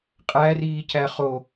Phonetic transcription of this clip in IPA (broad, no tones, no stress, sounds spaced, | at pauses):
qʼ æ r iː c æ χ o